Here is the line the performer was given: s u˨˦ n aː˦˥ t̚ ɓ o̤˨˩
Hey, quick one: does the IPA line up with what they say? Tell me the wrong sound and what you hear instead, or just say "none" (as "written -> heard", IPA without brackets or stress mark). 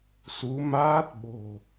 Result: n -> m